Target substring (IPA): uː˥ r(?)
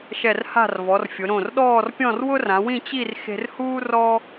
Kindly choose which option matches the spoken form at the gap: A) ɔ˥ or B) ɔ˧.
A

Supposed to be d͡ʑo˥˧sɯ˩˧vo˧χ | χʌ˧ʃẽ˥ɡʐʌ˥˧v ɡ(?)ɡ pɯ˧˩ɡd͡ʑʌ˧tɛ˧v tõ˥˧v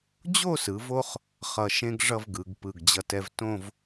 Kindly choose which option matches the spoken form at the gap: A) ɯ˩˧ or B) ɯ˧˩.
A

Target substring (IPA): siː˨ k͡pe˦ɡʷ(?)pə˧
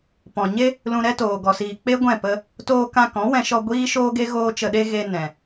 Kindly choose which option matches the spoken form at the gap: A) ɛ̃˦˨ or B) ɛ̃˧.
A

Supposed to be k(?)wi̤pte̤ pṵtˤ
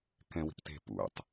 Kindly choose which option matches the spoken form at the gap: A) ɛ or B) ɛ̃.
B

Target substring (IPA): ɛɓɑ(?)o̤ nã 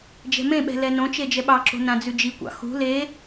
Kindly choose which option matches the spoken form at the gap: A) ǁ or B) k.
A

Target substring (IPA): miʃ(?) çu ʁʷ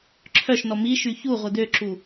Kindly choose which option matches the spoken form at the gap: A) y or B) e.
A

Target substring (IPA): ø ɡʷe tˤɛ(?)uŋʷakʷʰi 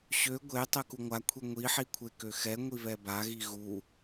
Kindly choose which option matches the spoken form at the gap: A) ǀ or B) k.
B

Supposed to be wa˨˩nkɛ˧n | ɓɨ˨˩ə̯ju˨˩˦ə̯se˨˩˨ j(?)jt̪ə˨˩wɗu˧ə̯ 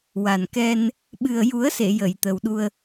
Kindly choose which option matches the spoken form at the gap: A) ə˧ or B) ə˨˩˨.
B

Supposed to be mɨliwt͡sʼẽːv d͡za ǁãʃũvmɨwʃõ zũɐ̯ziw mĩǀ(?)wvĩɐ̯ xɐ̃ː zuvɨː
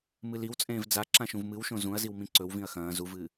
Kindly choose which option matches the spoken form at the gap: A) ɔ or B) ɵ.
B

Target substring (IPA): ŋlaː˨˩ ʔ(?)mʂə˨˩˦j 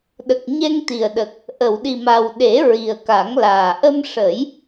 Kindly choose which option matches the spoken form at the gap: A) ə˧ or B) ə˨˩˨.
A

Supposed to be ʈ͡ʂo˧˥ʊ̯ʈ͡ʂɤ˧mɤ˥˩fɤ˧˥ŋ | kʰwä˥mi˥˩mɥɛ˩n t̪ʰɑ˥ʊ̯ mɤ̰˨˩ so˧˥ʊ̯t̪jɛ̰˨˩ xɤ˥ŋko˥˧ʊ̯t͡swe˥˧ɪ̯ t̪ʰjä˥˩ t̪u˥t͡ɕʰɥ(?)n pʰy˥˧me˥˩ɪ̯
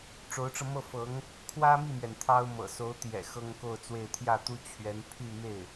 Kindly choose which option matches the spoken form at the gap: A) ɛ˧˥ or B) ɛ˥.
A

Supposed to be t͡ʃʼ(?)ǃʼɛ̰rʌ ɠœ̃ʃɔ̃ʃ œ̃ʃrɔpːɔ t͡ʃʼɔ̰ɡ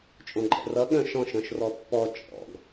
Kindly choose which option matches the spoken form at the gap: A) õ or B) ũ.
A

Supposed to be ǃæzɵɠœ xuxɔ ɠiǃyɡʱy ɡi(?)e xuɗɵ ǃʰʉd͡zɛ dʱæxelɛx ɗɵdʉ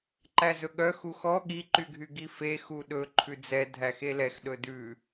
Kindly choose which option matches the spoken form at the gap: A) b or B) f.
B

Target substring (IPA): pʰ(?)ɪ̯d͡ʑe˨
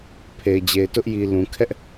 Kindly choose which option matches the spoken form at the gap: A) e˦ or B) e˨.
B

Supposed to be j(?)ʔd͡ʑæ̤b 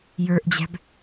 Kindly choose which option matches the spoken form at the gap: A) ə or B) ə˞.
B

